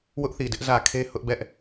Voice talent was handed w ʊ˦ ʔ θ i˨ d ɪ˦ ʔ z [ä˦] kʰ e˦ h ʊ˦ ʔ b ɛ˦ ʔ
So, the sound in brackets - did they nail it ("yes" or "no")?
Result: no